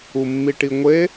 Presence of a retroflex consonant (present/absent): present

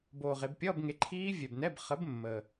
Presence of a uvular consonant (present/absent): present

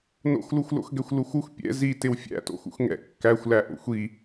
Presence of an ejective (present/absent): absent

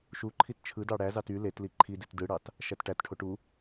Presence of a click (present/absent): present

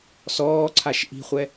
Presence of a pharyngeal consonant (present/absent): absent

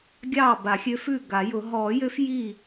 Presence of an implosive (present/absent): absent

